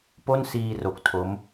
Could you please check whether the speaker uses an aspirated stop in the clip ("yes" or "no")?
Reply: yes